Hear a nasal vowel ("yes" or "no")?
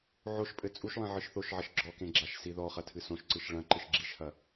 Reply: yes